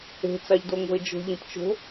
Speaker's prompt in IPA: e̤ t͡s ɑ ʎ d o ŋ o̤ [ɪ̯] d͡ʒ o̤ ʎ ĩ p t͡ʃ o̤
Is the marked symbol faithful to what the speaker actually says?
yes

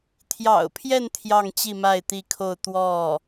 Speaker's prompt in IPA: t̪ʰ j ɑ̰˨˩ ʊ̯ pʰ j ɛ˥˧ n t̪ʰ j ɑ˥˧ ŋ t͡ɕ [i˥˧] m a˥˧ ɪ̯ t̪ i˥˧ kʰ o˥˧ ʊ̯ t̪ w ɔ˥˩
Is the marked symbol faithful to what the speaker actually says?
yes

